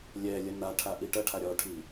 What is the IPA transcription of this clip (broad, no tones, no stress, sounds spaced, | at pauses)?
lʲ ɛ lʲ ɐ n a ʈʰ a ʔ i ʈ ɐ ʈʰ a ɾʲ ɔ ʈʰ i